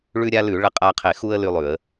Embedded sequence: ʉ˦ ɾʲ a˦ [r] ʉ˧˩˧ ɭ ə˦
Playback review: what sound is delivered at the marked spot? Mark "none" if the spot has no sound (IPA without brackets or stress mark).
l